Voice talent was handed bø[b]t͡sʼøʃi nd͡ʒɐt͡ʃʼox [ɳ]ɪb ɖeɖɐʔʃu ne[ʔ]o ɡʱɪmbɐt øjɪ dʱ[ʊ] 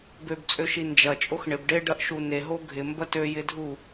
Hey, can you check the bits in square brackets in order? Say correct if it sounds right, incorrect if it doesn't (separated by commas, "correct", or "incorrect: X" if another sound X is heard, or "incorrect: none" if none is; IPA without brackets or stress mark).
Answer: correct, correct, incorrect: ɦ, incorrect: u